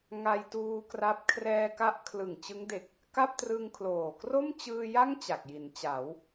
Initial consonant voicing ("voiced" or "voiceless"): voiced